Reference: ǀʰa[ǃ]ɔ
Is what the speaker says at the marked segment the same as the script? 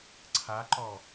yes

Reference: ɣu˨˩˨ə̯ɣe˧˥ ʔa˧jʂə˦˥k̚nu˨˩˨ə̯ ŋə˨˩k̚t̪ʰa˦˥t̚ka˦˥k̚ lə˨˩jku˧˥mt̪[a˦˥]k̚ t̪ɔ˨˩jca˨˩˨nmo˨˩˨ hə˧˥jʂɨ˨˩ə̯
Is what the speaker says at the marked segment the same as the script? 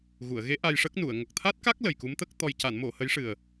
no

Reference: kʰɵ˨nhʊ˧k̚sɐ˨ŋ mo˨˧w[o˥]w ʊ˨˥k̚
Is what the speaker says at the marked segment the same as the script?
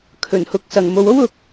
yes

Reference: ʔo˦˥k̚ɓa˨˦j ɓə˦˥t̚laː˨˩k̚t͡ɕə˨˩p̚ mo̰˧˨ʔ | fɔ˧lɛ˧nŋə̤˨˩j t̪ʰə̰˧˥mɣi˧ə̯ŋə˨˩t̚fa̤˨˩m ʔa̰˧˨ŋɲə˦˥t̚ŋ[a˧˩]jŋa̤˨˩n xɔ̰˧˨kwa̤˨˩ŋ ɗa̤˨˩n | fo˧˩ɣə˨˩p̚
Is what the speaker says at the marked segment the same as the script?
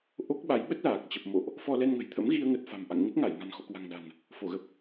yes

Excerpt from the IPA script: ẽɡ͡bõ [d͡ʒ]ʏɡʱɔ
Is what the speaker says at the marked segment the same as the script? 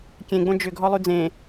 yes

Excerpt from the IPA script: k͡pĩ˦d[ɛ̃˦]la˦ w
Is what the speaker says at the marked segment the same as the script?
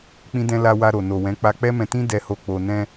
yes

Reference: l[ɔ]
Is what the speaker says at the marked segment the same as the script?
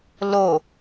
no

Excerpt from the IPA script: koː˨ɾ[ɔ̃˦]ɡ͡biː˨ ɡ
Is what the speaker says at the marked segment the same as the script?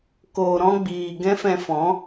yes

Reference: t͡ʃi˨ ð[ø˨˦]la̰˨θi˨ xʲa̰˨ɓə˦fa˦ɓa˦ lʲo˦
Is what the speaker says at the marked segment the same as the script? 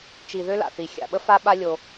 no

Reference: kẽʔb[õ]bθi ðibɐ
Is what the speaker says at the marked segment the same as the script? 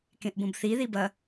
yes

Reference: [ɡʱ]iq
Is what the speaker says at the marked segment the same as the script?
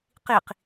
no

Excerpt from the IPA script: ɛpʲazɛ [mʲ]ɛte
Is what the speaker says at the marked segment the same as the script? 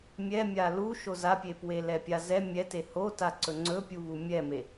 yes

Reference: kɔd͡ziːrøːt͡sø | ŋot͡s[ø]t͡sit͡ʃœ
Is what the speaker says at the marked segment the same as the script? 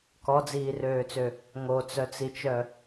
no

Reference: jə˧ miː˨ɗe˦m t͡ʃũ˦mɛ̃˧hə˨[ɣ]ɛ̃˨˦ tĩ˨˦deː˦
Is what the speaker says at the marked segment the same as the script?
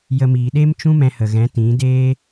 yes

